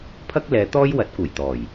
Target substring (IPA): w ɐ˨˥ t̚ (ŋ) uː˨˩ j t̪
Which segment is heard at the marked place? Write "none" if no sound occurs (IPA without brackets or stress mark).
k